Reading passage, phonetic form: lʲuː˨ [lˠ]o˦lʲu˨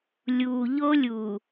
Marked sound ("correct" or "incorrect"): incorrect